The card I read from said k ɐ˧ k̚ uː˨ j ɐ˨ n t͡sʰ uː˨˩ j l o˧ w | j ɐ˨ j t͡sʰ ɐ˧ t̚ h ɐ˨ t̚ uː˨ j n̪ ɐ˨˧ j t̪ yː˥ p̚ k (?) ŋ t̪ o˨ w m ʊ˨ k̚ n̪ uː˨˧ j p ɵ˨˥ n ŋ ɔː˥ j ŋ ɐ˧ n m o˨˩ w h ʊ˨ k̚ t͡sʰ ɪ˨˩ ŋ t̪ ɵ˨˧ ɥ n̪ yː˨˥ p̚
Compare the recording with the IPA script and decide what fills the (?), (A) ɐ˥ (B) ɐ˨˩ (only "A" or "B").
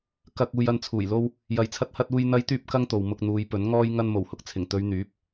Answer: A